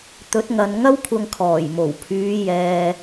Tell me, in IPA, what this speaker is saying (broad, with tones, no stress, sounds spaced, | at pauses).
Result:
t̪ ɵ˨˥ t̚ ŋ ɐ˨ n ŋ ɐ˥ w kʷʰ ɐ˧ ŋ kʰ ɔː˨˩ j m o˨˩ w pʰ yː˨˧ j ɛː˨